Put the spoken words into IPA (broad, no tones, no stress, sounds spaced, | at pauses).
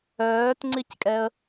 œː t ŋ͡ǀ i c kʼ ɛ ə̯